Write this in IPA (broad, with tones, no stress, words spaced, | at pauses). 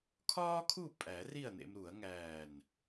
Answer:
kʰɒː˥kʰu˥˨ pʼæ˨˩˦ ri˥˨ɐ̯nḛ˧m ɾu˨˩˦ɐ̯ŋæː˧˩n